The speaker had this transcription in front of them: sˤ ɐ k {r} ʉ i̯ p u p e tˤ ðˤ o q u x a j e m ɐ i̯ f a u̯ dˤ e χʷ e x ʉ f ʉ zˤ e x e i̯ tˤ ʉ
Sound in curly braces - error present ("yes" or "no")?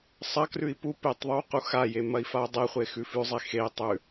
no